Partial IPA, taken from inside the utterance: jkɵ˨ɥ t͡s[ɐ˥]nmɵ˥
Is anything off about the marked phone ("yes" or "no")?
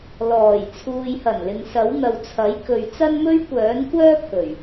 no